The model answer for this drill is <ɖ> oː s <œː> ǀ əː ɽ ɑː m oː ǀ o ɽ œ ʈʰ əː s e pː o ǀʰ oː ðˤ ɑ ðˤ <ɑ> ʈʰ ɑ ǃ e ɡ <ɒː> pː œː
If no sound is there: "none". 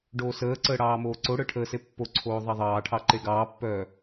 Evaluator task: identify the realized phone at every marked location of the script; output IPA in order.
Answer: ɖ, əː, ɑː, ɑː

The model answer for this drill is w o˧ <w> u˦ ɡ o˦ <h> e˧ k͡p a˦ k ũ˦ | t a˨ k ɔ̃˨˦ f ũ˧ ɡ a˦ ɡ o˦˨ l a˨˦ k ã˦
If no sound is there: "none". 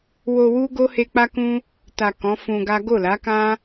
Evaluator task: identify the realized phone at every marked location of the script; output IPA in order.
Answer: w, h

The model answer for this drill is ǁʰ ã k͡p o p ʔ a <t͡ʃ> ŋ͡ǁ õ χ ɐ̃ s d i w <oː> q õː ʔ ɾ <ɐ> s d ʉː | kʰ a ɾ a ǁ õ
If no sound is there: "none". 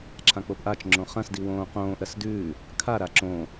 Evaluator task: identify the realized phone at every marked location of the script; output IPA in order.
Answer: t͡ʃ, õː, ɐ

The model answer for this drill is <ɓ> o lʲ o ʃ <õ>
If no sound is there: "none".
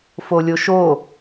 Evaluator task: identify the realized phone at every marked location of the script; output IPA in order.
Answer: f, o

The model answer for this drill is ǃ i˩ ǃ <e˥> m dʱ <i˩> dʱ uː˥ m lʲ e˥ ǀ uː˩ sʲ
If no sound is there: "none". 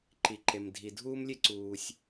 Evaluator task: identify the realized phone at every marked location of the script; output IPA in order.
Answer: e˩, i˩

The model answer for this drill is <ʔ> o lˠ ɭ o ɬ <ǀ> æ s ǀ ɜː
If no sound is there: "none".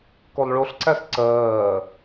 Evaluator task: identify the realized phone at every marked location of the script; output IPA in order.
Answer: k, ǀ

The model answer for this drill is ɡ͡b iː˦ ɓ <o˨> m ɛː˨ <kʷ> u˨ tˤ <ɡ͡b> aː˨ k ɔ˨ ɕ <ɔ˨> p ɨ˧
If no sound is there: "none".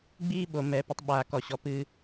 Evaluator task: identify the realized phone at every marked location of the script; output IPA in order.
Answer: o˨, p, ɓ, ɔ˨

